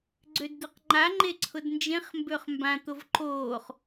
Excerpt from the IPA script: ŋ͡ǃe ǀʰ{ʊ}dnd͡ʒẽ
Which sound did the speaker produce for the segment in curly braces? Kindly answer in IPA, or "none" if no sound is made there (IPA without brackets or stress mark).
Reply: ʊ